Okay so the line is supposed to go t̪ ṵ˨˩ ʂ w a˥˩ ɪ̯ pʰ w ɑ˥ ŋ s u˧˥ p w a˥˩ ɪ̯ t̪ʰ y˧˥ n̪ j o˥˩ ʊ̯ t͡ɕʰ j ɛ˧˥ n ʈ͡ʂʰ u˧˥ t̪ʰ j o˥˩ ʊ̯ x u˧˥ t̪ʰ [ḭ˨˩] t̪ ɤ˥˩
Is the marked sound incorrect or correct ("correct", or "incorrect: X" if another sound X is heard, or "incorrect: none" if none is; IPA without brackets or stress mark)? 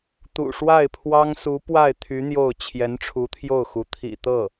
correct